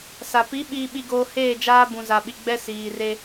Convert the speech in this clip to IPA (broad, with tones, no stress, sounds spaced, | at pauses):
s a˨ p i˨˦ ɓ iː˨ ɓ i˨ ɡ oː˨ h eː˦˨ d͡ʒ aː˦ b ũ˨ z a˨ ɓ i˨ ɡ͡b ɛ˦ s iː˨ r e˦